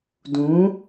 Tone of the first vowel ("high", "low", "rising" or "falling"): rising